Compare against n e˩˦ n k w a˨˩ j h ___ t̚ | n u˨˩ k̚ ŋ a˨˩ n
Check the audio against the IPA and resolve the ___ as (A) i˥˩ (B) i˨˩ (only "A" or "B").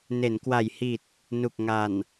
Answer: B